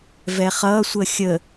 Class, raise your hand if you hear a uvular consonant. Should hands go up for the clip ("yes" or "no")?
yes